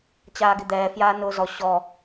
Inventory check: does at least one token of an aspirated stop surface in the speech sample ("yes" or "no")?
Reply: no